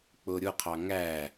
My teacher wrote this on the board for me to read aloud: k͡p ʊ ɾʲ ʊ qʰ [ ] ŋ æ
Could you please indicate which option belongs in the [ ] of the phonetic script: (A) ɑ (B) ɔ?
A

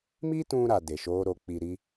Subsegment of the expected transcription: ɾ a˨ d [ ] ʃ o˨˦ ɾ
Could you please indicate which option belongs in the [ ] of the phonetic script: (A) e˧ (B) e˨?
B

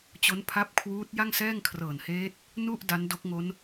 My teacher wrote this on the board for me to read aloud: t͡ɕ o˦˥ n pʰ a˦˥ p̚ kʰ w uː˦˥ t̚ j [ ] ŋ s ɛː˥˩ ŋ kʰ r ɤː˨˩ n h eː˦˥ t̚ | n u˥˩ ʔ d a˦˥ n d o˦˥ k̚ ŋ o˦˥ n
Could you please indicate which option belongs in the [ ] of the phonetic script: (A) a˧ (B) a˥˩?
B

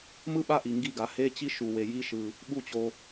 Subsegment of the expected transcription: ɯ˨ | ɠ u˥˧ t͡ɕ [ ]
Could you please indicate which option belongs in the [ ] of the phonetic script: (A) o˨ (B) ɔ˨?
A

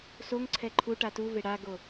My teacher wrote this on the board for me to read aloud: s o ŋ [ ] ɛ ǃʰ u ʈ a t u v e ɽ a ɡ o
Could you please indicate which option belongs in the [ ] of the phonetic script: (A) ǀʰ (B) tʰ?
A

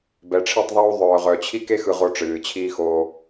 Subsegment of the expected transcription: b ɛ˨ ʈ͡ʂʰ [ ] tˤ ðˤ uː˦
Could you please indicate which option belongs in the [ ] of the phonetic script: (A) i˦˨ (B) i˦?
A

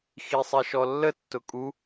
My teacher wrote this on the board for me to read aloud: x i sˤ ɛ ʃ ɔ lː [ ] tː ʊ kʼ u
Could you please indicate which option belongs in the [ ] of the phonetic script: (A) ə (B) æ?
A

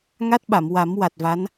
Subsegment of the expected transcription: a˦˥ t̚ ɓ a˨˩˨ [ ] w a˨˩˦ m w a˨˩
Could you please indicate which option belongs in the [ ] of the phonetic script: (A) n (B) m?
B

